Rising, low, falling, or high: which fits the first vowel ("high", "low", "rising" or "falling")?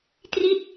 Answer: falling